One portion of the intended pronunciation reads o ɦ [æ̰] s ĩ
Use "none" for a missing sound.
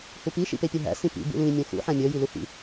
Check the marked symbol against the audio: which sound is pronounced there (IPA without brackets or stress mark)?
æ̰